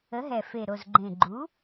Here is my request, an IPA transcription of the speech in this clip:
ə˩˥ ɦ ɛ˨˩ f e˨˩ ɾ o˨˩ z ɡ͡ǃ ẽ˨˩ ɡ͡ǃ u˩˥

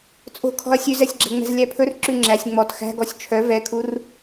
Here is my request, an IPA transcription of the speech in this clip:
t͡sʼ o̤ kʰ ɔ̤ ɐ̯ sʲ ʉ z ɛ sʲ ɡ͡ǁ ɛ̤ ŋ͡m ɛ̤ z lʲ æ pʰ ɵ r ǁ ʉ ŋ͡ǁ æ sʲ ŋ͡m ɔ t x æ̤ ɡ ɔ sʲ t͡ʃʰ œ v ɛ kʰ u r

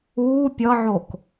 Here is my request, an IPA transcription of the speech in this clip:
uː pʲ ʌ ʕ o k

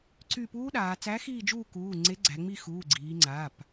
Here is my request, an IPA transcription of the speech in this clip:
ǀ y˦˨ p uː˦˥ ɗ aː˩˧ t͡s æ˨˥ x iː˦˨ d͡ʒ uː˦˨ k uː˩˧˩ ŋ͡ǀ e˨˥ ɡ͡ǀ æ˩˧ ŋ͡m i˦˨ x uː˩˧˩ ɡ͡ǀ iː˩˧ ŋ͡ǀ aː˩˧˩ p

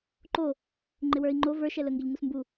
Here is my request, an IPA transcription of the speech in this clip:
ǃ o | ŋ͡ǃ ɪ w ə˞ i̯ ŋ͡ǃ o v ə˞ ʃ ɛ l ə ŋ ɡ ɪ ʎ ŋ u s m b u

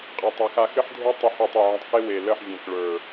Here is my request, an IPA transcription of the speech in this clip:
qʼ a˨ tˤ a˨ x a˨ x ɘ˦ ħ dʱ e˦ tˤ y˨ ħ ɘ˨ tˤ y˨ ʕ ə̃˨ tˤ x e˦ w e˨ l ə˦˨ ħ vʲ ẽ˨ k ɭ ə˞˨

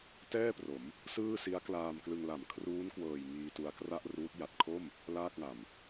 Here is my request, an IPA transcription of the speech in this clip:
t ɛː˥˩ p r o˩˦ m | s ɯː˥˩ s i˦˥ a̯ k l aː˧ m k l ɯ˧ ŋ l a˩˦ m kʰ r uː˦˥ n k w ɤː˨˩ j ŋ iː˧ t u˧ a̯ k r a˥˩ ʔ r uː˦˥ t̚ j a˨˩ t̚ kʰ o˥˩ m | l aː˥˩ k̚ ŋ a˨˩ m

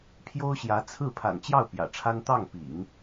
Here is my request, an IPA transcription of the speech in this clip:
pʰ j o˥ ʊ̯ ɕ j ä˧˥ t͡sʰ ɹ̩˥˩ pʰ a̰˨˩ n t͡ɕ j ɑ˥˩ ʊ̯ p j ä̰˨˩ ʈ͡ʂʰ a˥ n t̪ ɑ˥˩ ŋ p ḭ˨˩˦ ŋ

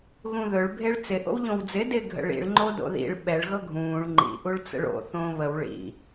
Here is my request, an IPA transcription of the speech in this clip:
ɣ ũ ð ɵ ɭ bʱ e ɭ t͡s ɪ ʔ o̰ w ʎ õ w d͡z ɪ d ɪ ɡʱ ə̰ ɭ ḭ ɭ ŋ͡ǃ o d o̰ ð ḭ ɭ ɓ ɛ ɭ ɣ ɤ ɡʱ ũː ɭ ŋ͡ǃ ḭ ʔ u ɭ t͡s ə̰ ɭ o̰ θ õː β ə w ɭ ḭ

